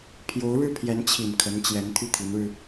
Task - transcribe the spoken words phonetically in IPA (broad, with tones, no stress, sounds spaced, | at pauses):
pʰ j o˧˥ ʊ̯ ɻ ɻ̩˥˩ pʰ j ɛ˧˥ n t͡ɕʰ i˨˩ n kʰ ə˧˥ n t͡ɕ j ɛ˧˥ n t̪ʰ y˥˩ t̪ʰ i˧˥ n ɻ ɻ̩˧